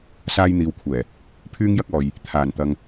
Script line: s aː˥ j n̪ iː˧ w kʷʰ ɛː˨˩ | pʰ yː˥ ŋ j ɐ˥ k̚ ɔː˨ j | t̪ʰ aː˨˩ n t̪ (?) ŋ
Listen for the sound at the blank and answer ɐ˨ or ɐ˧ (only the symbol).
ɐ˧